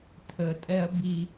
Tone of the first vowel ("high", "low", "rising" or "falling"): low